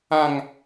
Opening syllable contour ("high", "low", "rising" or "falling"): low